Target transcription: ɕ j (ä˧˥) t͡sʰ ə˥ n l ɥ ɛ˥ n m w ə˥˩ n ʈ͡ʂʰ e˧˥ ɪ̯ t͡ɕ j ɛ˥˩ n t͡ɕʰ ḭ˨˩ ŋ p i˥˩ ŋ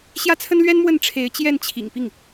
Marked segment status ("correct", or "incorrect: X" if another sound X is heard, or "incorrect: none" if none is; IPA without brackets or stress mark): incorrect: ä˥